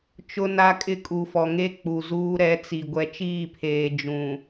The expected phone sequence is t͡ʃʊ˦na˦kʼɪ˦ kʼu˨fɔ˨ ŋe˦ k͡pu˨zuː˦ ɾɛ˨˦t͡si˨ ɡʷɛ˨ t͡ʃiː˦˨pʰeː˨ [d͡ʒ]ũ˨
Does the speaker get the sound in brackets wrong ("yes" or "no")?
no